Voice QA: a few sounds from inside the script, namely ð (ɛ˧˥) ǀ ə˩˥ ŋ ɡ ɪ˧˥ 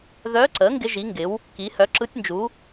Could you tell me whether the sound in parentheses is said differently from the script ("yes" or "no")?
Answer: yes